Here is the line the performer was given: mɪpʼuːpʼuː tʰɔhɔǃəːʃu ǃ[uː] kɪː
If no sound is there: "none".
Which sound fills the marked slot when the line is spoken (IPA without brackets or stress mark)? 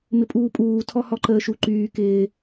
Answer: yː